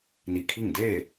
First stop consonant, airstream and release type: aspirated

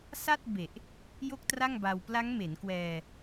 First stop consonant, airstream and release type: plain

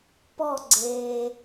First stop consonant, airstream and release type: plain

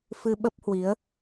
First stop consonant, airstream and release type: implosive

